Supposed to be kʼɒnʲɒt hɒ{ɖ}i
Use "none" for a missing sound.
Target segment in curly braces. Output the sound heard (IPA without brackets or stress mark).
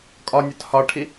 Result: ʈʰ